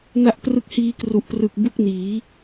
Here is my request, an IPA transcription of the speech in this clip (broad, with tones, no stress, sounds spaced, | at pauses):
n a˦˥ ʔ p r ɯ˦˥ k̚ h iː˧ k r u˨˩ ʔ p r ɯ˨˩ k̚ b u˦˥ k̚ n iː˩˦